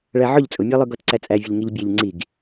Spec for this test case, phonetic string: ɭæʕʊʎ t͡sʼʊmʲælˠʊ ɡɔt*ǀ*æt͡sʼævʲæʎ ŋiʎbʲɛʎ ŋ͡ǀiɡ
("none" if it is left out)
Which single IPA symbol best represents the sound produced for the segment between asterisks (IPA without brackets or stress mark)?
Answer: ǀ